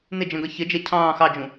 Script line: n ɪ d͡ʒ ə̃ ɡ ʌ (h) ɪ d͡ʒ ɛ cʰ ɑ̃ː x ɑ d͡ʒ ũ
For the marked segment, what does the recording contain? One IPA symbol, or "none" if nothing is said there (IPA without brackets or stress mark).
ç